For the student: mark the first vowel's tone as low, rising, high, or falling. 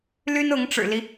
high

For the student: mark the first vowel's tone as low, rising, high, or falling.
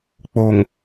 low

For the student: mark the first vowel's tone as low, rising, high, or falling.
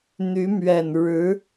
rising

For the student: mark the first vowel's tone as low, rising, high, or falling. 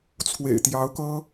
low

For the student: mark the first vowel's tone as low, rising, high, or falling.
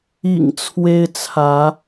low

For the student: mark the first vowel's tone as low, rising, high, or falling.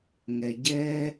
low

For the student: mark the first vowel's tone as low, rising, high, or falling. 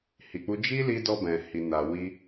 low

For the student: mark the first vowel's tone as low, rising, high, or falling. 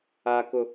high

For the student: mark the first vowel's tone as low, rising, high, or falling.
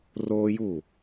high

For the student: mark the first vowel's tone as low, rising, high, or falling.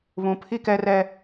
low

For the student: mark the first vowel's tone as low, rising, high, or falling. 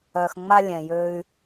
low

